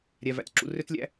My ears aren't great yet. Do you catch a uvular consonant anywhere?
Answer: no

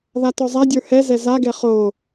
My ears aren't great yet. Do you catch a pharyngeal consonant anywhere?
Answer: no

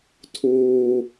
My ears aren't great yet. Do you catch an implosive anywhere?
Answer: no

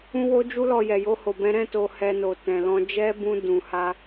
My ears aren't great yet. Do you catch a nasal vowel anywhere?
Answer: yes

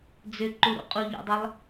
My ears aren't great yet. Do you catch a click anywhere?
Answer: yes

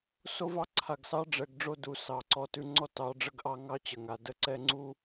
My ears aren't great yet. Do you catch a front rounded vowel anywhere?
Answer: no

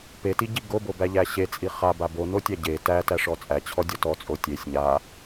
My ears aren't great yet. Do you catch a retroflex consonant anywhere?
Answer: yes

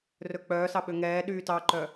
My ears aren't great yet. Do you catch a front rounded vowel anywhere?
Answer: yes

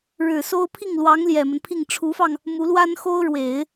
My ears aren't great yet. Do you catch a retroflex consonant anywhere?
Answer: yes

